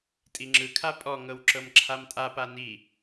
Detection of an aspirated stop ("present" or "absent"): present